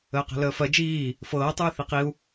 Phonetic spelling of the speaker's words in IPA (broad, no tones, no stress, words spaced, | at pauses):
əːqæ̤ləːfɜ d͡ʒiː | fɤː tˤɯːθiqiu̯